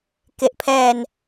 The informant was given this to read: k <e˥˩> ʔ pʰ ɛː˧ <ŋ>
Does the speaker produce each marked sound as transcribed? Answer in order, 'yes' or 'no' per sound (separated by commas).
no, no